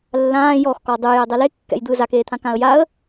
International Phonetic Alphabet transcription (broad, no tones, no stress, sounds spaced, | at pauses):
lː ãː j ɔ x k ɔ dˤ ɯ j ɛ dˤ ɛ l e kː ɛ̰ j d̪ ɯː z a k eː t̪ʰ ã k ã ə̯ j a ə̯